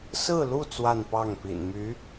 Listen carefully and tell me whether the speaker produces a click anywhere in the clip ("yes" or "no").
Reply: no